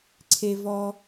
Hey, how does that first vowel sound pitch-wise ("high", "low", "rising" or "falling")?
high